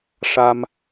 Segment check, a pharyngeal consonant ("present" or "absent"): absent